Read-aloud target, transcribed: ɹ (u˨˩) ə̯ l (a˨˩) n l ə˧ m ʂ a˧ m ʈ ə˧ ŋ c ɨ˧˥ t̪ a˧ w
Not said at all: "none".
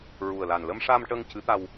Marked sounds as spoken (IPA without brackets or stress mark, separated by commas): u˨˩, a˨˩